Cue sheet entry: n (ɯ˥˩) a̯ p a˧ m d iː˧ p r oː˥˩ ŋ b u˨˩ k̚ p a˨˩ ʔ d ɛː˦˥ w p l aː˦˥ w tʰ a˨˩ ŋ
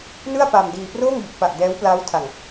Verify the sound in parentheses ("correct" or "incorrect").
correct